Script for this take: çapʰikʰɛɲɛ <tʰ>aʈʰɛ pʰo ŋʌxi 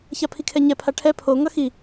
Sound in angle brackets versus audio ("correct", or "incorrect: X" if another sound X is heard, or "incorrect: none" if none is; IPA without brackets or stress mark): incorrect: pʰ